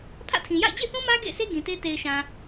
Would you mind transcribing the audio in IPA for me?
pʰ ä̰˦˨ tʰ ĩ˨ j a̰˦˨ ɪ̯ d͡ʑ ḛ˦˨ θ ũ˦ m ä˦ ɡ ḛ˦˨ ɪ̯ s e˦ ɡ ĩ˨ t e˦ t e˨ ɪ̯ ʃ ã˨

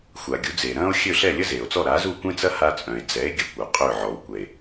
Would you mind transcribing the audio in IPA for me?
xʷ a˩ ɡʲ u˩˥ d͡z eː˩ ɾ ɐ̃ː˥ o̯ xʲ ø˥˩ ɬ ɛ˥˩ lʲ ə˥ z eː˩ o̯ t͡s ɔ˥˩ ɾ a˩˥ z u˥˩ kʷ ẽ˥ t͡s ɐ˥ h a˧ t͡sʼ œ̃˩ e̯ d͡z ɛ˩˥ e̯ ɡʲ ɐ˧ kʷ œ˩ qʼ ø˥˩ ʕ ɔ˩˥ w kʷ ɛ˩ e̯

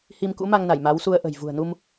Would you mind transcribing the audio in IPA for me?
h i˧ m k ṵ˧˥ m a˧ ŋ n a˧˩ j m a˨˦ w s u˧ ə̯ ʔ ə̤˨˩ j v ṳ˨˩ ə̯ n u˧ m

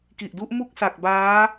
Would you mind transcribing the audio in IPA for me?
k i˨˩ ʔ d u˦˥ ʔ m u˥˩ k̚ s a˨˩ k̚ b aː˦˥

